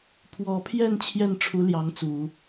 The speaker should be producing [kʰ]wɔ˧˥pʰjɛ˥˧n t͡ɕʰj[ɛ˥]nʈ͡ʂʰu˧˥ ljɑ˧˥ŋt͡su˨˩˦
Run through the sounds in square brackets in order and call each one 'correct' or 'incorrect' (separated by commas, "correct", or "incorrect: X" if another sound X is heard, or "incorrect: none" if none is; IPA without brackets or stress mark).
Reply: incorrect: pʰ, incorrect: ɛ˥˩